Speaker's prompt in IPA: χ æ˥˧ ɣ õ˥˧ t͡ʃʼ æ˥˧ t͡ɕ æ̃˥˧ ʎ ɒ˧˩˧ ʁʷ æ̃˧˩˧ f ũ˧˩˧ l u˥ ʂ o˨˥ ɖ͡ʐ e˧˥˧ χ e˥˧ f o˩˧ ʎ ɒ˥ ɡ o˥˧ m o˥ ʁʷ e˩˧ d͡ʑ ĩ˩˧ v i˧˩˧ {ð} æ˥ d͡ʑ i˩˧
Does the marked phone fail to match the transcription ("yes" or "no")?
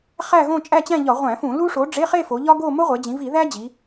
no